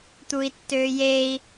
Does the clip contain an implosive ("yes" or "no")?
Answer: no